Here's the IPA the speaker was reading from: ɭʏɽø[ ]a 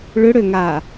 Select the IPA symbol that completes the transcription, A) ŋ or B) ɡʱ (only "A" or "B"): A